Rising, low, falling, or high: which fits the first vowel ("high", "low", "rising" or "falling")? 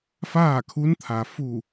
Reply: falling